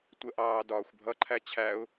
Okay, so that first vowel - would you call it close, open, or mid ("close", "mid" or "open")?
mid